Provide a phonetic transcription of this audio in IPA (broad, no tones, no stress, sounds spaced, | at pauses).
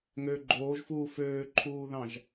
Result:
ŋ ø ɡ͡ǃ oː ʒ f uː f øː ǃʰ uː ð ɑ̃ ʒ